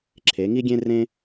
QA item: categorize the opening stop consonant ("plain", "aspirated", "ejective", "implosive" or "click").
click